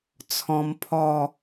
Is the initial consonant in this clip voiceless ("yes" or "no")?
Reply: yes